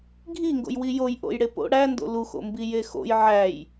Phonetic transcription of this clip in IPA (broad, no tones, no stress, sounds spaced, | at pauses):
ɡʱ i ŋ ɡ o̰ j w i j o j ʔ o̰ j ɽ e p o̰ ɽ æ n d o̰ l u x o̰ m b i j e x o̰ j ʕ æ j